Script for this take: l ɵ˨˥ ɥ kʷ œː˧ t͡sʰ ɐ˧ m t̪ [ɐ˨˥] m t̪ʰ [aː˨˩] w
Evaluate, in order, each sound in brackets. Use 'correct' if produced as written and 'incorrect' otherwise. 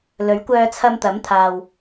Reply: correct, incorrect: aː˨

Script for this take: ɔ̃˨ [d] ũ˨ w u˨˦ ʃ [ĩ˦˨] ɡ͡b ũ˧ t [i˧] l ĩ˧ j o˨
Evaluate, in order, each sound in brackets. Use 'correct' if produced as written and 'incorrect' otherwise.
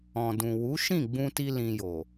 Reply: correct, correct, correct

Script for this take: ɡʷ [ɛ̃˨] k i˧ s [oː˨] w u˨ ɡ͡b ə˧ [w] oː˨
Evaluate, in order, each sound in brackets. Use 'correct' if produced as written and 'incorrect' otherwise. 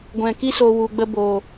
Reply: correct, incorrect: o˨, incorrect: b

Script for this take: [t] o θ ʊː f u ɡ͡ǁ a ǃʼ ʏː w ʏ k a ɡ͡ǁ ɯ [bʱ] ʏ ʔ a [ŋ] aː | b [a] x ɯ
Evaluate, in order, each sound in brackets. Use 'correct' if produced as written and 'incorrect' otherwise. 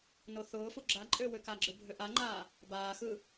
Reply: incorrect: n, correct, incorrect: ŋ͡ǃ, incorrect: aː

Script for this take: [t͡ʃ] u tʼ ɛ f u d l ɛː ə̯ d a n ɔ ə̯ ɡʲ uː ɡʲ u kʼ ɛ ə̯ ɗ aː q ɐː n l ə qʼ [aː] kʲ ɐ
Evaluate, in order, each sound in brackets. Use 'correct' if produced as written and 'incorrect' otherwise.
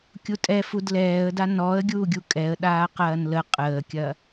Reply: incorrect: kʲ, incorrect: əː

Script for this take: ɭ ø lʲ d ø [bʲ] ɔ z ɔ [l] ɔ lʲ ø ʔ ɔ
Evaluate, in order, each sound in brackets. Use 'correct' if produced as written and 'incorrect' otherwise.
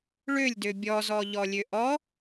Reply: correct, incorrect: ʎ

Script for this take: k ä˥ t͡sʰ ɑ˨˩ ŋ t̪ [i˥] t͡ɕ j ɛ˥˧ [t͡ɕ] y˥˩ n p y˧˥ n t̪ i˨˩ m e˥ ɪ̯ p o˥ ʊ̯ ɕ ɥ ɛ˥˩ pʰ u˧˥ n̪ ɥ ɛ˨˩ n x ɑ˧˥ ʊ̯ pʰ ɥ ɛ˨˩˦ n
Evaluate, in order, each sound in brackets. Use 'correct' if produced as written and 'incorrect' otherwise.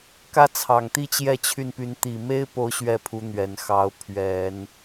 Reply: correct, incorrect: t͡ɕʰ

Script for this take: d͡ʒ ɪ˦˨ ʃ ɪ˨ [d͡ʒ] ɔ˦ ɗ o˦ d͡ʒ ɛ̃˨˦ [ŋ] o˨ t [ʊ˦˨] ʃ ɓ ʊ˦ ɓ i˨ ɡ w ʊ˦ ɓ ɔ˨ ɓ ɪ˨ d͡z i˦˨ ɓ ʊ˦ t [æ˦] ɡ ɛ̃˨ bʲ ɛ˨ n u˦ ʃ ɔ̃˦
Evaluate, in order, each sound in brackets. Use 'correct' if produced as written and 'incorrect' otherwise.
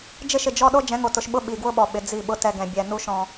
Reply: correct, correct, incorrect: ʊ˨, incorrect: ɛ˦

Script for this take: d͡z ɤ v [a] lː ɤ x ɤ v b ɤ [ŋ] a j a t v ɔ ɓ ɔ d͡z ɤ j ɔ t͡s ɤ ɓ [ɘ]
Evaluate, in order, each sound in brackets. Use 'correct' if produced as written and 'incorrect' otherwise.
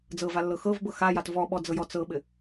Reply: correct, incorrect: x, correct

